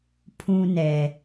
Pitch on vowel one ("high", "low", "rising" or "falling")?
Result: high